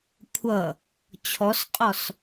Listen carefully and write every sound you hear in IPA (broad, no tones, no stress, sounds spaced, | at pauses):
kʷʰ ʌ | t͡ɕʰ ɔ s qʼ ɔ s